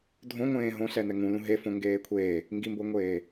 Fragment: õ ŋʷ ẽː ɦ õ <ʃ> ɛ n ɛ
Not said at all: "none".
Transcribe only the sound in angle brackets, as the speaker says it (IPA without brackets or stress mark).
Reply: ɬ